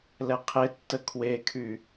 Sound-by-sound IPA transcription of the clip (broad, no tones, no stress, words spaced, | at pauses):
lɛqʰetːə kʰwekʰy